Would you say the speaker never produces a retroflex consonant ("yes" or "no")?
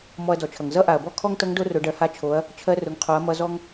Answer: no